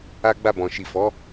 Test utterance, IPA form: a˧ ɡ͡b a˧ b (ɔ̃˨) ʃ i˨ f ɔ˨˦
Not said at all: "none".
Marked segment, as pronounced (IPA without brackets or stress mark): ɔ̃˨